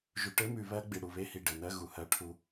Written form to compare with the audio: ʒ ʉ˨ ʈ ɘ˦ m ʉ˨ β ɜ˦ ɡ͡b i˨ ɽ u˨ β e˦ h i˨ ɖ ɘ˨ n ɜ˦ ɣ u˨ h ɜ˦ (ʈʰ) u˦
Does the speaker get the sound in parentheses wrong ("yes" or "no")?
no